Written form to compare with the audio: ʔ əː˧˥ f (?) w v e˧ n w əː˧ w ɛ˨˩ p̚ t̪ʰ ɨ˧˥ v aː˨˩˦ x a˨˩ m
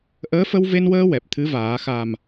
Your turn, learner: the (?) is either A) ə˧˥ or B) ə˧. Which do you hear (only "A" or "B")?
B